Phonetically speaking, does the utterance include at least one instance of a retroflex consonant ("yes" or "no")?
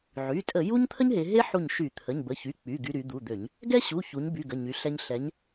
no